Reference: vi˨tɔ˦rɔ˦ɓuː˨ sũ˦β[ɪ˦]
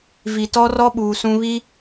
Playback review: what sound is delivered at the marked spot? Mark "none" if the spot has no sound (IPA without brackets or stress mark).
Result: i˦